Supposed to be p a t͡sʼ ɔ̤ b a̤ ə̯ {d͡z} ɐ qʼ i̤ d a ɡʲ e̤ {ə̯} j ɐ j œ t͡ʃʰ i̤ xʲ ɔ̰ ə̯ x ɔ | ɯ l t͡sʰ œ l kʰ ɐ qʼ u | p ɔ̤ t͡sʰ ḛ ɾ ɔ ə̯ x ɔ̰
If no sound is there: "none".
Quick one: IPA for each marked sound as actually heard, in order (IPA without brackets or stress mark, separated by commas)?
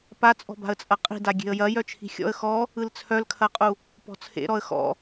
t͡sʼ, ə̯